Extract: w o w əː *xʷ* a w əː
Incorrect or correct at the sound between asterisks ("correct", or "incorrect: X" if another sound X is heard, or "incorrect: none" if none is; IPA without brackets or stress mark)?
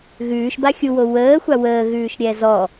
correct